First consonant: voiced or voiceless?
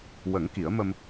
voiced